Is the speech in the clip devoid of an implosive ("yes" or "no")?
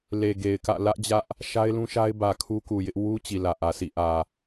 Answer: yes